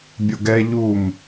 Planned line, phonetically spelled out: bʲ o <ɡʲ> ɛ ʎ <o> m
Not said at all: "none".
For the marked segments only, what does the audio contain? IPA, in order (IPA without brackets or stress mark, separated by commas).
ɡ, u